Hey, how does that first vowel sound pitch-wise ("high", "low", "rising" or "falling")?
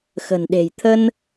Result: low